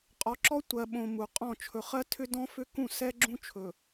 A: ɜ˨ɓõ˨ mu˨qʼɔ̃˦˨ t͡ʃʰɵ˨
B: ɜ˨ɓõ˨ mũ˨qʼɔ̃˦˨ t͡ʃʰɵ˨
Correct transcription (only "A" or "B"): A